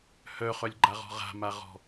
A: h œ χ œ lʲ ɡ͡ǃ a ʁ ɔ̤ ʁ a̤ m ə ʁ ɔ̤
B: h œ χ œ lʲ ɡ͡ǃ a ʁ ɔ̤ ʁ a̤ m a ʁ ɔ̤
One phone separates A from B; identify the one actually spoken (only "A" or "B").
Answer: B